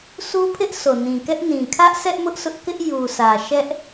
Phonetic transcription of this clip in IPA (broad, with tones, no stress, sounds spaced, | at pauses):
s u˦ pʰ ɪ˦ ʔ sʰ o˨ n ĩ˨ k ɛ˦ ʔ n ĩ˨ kʰ ä˦ ʔ sʰ ɛ˦ ʔ m ʊ˦ ʔ sʰ ʊ˦ ʔ k ɪ˦ ʔ j u˨ s ä˨ ʃ ɛ˦ ʔ